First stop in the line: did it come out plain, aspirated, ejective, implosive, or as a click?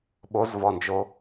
implosive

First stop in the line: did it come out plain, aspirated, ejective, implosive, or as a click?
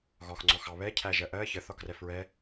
click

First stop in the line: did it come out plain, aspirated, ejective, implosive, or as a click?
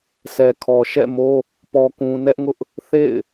aspirated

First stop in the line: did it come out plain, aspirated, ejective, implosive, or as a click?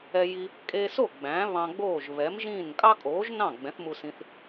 ejective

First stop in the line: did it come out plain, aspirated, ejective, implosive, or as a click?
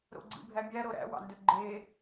click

